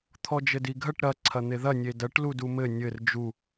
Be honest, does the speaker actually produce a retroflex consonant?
yes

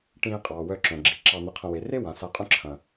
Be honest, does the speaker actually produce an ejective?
yes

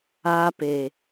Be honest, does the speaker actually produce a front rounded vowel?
no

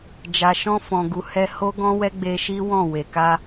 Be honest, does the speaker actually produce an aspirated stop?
no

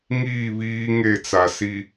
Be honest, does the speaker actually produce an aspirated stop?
no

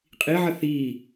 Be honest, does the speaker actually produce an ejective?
yes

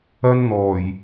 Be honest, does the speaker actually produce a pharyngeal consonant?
no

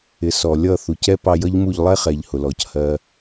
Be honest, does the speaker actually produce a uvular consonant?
yes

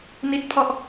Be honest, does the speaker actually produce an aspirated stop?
yes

